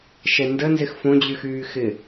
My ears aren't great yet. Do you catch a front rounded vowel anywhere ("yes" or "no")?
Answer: yes